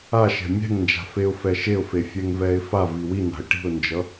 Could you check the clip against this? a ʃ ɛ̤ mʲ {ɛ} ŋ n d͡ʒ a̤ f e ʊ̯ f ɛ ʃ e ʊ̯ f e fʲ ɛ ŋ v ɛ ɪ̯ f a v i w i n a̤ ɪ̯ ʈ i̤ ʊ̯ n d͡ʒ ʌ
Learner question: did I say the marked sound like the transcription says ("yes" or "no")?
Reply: no